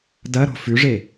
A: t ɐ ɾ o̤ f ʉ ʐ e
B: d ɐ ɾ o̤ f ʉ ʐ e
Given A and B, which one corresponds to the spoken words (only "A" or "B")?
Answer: B